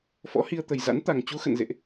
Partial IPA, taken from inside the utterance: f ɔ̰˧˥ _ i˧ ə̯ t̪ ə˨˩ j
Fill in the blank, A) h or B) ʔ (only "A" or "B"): A